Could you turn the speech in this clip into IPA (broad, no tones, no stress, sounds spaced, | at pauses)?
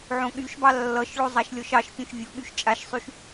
ʕ õ ɠ y ʃ b ɑ lː ʌ ʃ ɭ o zˤ a ʃ lʲ ɔ ʃ ɑ ʃ pʲ õ ʃ vʲ o ɠ y ʃ t͡ʃʼ a ʃ sˤ y ʃ